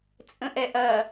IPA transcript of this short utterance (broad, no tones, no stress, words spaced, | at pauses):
t͡sʼə̃ʔɛʔɐ